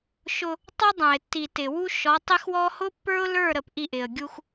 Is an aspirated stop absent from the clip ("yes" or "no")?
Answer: yes